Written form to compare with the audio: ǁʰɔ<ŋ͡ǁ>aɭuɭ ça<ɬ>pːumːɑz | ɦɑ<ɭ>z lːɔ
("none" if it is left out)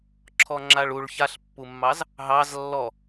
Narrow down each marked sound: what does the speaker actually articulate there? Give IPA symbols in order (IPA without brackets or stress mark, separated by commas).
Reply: ŋ͡ǁ, ɬ, none